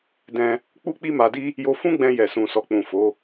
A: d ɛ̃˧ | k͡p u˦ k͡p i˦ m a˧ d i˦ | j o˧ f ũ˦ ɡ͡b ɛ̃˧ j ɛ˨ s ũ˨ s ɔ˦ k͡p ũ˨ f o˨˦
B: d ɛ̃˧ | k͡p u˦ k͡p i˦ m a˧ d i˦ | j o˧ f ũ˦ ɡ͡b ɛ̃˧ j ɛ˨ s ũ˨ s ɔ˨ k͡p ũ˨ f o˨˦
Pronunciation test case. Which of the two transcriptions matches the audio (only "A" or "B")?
B